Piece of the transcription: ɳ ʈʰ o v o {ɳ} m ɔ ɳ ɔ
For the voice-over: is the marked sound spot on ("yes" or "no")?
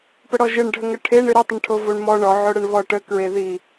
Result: yes